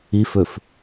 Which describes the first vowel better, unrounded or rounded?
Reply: unrounded